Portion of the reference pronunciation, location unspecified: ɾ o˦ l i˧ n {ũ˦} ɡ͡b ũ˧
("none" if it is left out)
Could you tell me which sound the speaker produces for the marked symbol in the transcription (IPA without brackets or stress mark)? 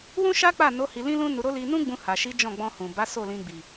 ũ˦